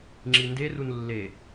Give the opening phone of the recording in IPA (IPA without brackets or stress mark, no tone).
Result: ŋ͡ǁ